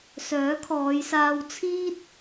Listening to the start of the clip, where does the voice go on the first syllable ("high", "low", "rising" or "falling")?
rising